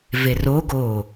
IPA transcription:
v e r o ɡ oː

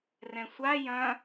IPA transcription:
r ɛ̃ sʷ a j ɐ̃

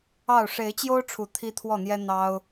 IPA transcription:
ɑ˥˨ ʊ̯ ʂ e˨˦ ɪ̯ t͡ɕ j o˦ ʊ̯ ʈ͡ʂʰ u˨˩ t̪ʰ i˦ t̪ʰ w ɔ˥˨ n̪ j ɛ˦ n̪ ɑ˦ ʊ̯

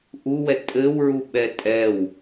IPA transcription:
ʔ u w ɛ tʼ ɘ w ɹ u ɓ ɛ tʼ ɛ w

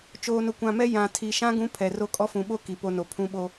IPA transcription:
t͡ʃ oː˨ n ʊ˨ kʷ ã˨ m ɛ˦ j ã˨ tʰ i˨ ʃ ã˦ ɡ ũ˦ pʰ ɛ˨ r o˦ kʼ ɔ˦ f ũ˨ ɓ o˦ k i˨ p o˦ n o˨ pʰ ũ˦ ɓ o˦

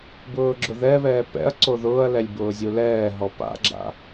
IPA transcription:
b ʊː ɡ͡ǁ ʊ ð ɛ β ɛː p ɛ̰ ɐ̯ ǀ o ð ʊː ɐ̯ l ɛ lʲ b ʊː zʲ u l ɛː ɦ ɔ p a̰ ɡ͡ǁ a̰

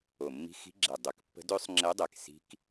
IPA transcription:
o˨˩ mː i̤˧˥ x i̤˧˥ ɡ͡ǁ ɛ˨˩ dˤ ø˨˩ k pː ə̤˧˥ d ø˧˥ sˤ ŋ͡ǁ ɛ˧˥ dˤ ɛ˨˩ k s i̤˧˥ k

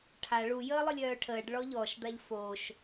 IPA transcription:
ʈʰ a ɭ u j əː lˠ ə lʲ œː ʈʰ əː ɖ ɭ ɔ ʎ ɔ ʃ d̪ a ʎ f o ʃ

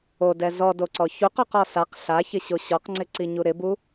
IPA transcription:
o d ɛ z ɔ d o ǀ ɔ ç u q ɔ q ɔ s a q ɬ a ç ɪ ɕ o ɕ ɔ q ŋ͡ǀ ɪ ǀ i ɲ u ɾ ɪ b u

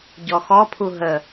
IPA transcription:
ɟ ɔ x ɔ pʰ u ɦ ə

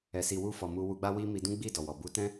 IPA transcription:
ɛ˨ s i˨ w u˧ f ɔ˨ m u˧ w u˧ ɡ͡b a˦ w i˦ m i˧ d ũ˦ ɡ͡b i˦˨ d ɔ˨ w ɔ˨ b u˨˦ t ɛ̃˦

